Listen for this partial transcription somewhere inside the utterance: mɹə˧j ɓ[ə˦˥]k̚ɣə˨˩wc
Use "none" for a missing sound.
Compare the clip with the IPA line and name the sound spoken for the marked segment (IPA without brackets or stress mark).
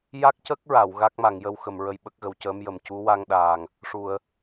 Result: ə˦˥